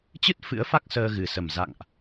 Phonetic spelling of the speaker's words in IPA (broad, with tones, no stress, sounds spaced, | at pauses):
t͡ɕ ɨ˦˥ t̚ f ɨ̰˧˥ ə̯ f a˦˥ k̚ s əː˧ ɣ ɨ˨˩ s ə˨˩ m z a̰˧˨ ŋ ʔ